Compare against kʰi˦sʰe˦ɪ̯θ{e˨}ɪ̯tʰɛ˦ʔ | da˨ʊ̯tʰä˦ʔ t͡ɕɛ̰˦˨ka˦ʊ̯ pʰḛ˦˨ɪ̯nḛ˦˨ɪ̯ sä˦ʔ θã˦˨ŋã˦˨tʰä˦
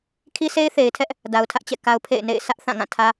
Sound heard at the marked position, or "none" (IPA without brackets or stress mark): e˨